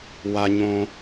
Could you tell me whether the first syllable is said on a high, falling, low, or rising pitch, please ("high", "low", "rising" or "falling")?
low